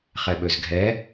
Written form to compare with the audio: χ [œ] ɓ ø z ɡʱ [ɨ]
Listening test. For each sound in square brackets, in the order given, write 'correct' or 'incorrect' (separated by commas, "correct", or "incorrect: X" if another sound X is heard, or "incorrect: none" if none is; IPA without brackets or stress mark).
incorrect: ɛ, incorrect: ɛ